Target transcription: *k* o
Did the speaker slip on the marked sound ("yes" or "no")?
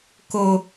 no